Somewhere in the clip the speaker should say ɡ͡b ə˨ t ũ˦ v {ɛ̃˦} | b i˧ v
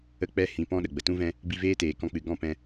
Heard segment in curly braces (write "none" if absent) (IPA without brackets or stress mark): ɛ̃˦